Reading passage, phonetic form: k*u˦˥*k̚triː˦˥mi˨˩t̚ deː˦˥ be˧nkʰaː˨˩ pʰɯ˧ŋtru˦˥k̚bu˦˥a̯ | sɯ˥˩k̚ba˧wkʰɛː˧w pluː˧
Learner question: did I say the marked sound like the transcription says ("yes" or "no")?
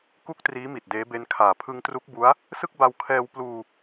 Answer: no